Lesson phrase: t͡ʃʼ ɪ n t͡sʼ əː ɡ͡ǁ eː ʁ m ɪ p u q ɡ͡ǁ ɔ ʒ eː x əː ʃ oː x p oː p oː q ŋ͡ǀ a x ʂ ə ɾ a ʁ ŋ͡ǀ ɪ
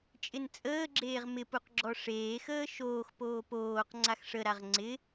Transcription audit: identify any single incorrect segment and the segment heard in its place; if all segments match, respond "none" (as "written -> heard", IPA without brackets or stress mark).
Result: ʒ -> ʂ